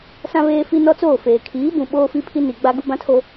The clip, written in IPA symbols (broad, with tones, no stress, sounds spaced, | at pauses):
s ã˦ β eː˦ f i˦ n ɔ˦ t͡s oː˦˨ f eː˨ kʰ iː˨˦ b ũ˨ ɓ oː˦ f i˦ pʰ i˦ n i˨ ɡ͡b a˦ ɡ u˦ b ã˦ tʰ o˦